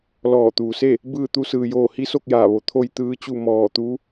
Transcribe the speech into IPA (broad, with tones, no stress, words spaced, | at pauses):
lɔː˧˩t̪uː˩se˥˨ | bɯː˥˨t̪u˧˥ sɯː˧joː˥˨ hi˧˥so˥˨k̚jaː˧˩ ʋo˩˧t̪ʰo˧j t̪ɯː˧˥t͡ɕu˥˨ mɔː˧˩t̪u˧˥